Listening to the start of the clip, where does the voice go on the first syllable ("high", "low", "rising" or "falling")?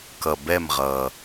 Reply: low